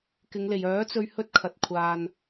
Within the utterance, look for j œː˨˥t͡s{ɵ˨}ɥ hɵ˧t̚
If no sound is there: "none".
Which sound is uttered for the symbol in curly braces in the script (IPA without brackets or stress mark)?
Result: ɵ˧